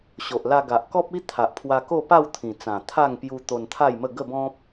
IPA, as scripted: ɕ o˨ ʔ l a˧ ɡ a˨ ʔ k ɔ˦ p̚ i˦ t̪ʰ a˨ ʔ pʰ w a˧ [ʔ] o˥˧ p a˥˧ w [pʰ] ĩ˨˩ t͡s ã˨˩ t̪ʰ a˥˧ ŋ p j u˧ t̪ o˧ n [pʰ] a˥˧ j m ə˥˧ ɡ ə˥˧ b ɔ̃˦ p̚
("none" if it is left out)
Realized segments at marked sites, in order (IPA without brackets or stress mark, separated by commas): k, t̪ʰ, t̪ʰ